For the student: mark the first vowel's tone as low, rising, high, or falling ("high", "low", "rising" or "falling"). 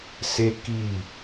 high